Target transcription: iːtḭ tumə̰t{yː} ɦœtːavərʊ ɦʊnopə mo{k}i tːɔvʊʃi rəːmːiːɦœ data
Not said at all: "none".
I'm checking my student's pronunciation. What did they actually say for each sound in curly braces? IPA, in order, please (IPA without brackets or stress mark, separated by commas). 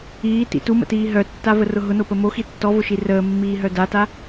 iː, x